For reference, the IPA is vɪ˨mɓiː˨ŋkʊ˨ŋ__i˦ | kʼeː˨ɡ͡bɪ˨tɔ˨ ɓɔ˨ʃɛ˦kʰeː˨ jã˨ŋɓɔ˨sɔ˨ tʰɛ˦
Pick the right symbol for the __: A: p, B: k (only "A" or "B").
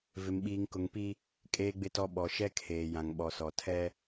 A